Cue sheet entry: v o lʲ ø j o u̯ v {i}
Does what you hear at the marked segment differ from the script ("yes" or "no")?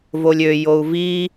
no